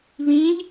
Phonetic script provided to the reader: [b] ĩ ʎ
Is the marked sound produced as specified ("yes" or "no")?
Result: no